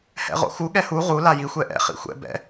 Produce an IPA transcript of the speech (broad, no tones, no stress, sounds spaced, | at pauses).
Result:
h ɛ̰ ʁ o̰ x u ɠ ɛ h u ʁ u l a j i xʷ ɛ ʔ ɛ̰ χ ḭ xʷ ɛ̰ b ɛ̰